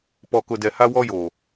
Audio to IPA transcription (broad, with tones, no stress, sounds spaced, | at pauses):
p ɔ˨ k ʊ˨ d ɛ˨ h a˦ w ɔ˦ j o˨